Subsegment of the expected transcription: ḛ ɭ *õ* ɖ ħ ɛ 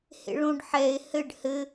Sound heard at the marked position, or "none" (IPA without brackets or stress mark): õ